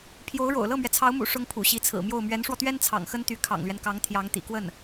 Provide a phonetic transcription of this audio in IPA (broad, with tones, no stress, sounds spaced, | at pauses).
pʰ j o˧˥ ʊ̯ ɻ o̰˨˩ ʊ̯ l ɤ˥˩ m ɥ ɛ˩ t͡sʰ ɑ˧˥ ʊ̯ m ṵ˨˩ ʂ ʊ˥ ŋ pʰ ṵ˨˩ ɕ i˧˥ t͡sʰ ɹ̩˨˩ m j o˥˩ ʊ̯ m ɥ ɛ˧˥ n ʂ w ɔ˧ t̪ ɥ ɛ˥ n t͡sʰ ɑ̰˨˩ ŋ x ə˥ n t̪ y˧˥ kʰ ɑ̰˨˩ ŋ l ɥ ɛ˦ n k ɑ˧˥ ŋ t̪ʰ j ɑ˧˥ ŋ t̪ ḭ˨˩ k w ə˥˩ n